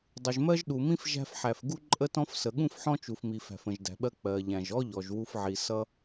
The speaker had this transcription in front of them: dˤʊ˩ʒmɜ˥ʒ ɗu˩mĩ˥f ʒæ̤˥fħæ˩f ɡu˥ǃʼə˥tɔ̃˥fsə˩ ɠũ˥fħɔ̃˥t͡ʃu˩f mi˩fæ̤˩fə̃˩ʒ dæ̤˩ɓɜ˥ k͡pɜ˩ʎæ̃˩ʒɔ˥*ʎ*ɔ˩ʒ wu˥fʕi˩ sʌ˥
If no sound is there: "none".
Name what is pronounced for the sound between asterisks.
ʎ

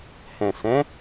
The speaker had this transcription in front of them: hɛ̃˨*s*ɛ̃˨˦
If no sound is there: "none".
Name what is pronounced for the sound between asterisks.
s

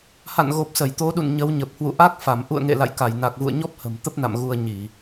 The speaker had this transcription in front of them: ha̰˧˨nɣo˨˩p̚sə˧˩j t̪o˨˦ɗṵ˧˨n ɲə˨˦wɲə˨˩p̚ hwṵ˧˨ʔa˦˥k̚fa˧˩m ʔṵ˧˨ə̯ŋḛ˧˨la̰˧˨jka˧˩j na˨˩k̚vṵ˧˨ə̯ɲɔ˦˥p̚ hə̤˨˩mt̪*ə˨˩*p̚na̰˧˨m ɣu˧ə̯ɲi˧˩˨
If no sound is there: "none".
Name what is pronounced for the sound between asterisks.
ə˦˥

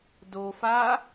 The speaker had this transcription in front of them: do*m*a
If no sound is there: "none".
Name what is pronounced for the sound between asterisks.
f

